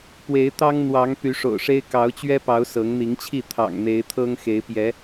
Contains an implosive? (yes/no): no